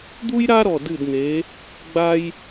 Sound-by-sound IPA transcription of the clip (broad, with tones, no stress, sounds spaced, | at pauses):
d̪ u˥ j ɾ a˥ ɾ ɔ˧˩ d ɨ˧˩ d n̪ e˩˧ | ɡ͡b a˥ j